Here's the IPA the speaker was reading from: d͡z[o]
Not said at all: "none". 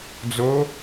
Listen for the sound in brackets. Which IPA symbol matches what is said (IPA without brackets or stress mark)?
o